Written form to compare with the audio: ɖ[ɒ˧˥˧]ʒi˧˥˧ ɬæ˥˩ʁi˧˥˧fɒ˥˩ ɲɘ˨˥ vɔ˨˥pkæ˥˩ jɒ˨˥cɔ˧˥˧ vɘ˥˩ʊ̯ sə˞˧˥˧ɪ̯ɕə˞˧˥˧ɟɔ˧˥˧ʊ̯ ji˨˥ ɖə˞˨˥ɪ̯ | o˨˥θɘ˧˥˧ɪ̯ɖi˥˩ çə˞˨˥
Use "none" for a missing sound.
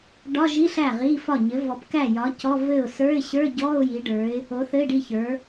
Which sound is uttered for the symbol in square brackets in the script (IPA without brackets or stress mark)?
ɒ˧˥˧